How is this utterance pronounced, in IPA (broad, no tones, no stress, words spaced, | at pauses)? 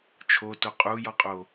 t͡ʃʰoto qʼujɔqʼo